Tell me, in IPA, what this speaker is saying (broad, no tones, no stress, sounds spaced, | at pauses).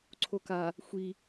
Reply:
ǀʰ o k a | xʷ i